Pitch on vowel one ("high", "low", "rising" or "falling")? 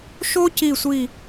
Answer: high